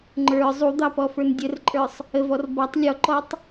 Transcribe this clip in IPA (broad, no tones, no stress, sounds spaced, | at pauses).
ŋ͡ǃ ə˞ zˤ u d̪ ɑ p ɔ f ə˞ n dʲ ə r ǃʼ ə˞ sˤ | ə v ɔ r b ɔ tˤ lʲ ɔ ǃ ɔ tˤ